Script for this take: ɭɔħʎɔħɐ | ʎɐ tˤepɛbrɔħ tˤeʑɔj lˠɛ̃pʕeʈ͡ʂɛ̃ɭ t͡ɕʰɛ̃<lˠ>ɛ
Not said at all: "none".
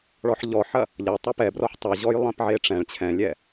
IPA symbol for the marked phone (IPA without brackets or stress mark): lʲ